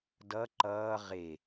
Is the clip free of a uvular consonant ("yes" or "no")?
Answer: no